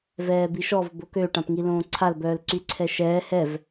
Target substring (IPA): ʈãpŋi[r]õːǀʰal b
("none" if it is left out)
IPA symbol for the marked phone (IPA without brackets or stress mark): l